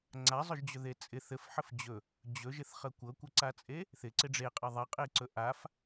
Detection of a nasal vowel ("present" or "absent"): absent